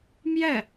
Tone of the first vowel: falling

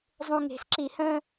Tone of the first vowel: low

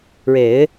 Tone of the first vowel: low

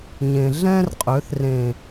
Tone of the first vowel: low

